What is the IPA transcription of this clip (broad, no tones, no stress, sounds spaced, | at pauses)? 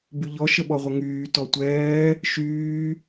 b y ʎ ɔ ʃ ə ɓ ɔ ʁʷ ə ŋ yː t ɔ tʷ ɛː | ʃ yː